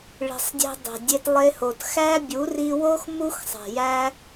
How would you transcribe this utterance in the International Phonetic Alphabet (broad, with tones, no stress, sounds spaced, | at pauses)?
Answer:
ɭ i̤˨ sˤ dʲ e̤˧ dˤ e̤˨ dʲ e˧ t lˠ e˧ h o˨ t x æ˦ bʲ u˨˦ r i˧ w o˦ x m u˦ x sˤ e̤˨ j æ˦